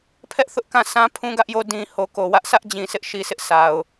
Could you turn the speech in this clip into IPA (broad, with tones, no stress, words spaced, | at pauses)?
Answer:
pʰɛ˦ʔ θʊ˦ʔkã˦˨ sã˦ pʰũ˦ɡä˦ʔjo˦ dĩ˨ ho˨ko˨wä˦ʔ sʰä˦ʔd͡ʑĩ˨ sɪ˦ʔʃi˨sʰɪ˦ʔ sʰa˨ʊ̯